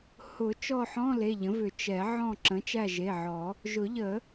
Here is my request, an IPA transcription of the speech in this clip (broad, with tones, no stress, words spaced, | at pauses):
hʊ˨˩˦ t͡ʃɔ˦˨ħɔ̃˧˥˧ le˩˧˩ʎə̃˩˥vʏ˨˩˦ t͡ʃɛ˨˩˦ ʕɔ̃˦˨ ǁə̃˩˥t͡ʃæ˦˨ʒe˩˧˩ʕɔ˨˩˦ | ʒʊ˨˩˦ʎə˨˩˦